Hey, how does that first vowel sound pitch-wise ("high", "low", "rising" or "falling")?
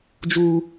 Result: low